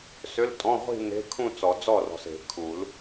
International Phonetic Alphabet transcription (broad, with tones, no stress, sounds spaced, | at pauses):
s ʏ˧˥˧ l tʼ ɔ̃˧˥˧ ʁʷ i̤˥˧ n e̤˧˥˧ kʰ ũ˥˧ t͡s ɔ˨˩˦ d͡z ɔ˥˩ r ɔ̤˨ s e̤˨˩˦ kʰ u˨˩˦ l